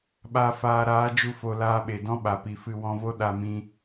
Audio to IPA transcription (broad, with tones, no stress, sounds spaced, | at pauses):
ɓ a˨ f aː˨ ɾ aː˨˦ d͡ʒ u˧ f o˨ l aː˧ ɓ e˨ d ɔ̃˦ ɓ a˨ p i˨ f ɨ˧ w ɔ̃˧ v o˦ ɗ a˧ m ĩ˧